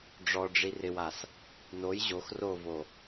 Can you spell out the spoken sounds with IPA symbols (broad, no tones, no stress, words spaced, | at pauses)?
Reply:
ɖ͡ʐɔɖ͡ʐi rɪwas | noj ʑox rovo